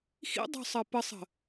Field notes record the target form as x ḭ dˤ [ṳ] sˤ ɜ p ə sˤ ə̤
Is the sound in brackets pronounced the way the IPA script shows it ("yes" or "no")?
no